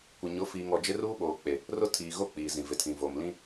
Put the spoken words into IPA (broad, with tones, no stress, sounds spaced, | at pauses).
kʷ ɪ˨ ɲ ʊ˨˦ f iː˨ ŋ ɔ˨ d͡ʒ ɪ˦ r uː˦ ɓ oː˨ k͡p e˨ | r ʊ˦ tʰ iː˨ ɣ o˦ k͡p iː˨ z ĩ˨ v ɪ˨ tʰ ĩ˨ v o˨ m l ĩ˦